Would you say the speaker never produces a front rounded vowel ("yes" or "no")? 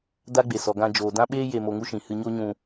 yes